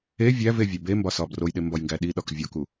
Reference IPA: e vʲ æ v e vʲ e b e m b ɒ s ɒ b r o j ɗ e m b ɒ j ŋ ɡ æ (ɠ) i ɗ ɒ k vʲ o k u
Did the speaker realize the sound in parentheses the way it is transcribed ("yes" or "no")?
no